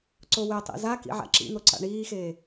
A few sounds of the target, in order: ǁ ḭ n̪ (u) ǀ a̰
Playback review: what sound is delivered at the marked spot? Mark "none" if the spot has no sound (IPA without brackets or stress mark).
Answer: o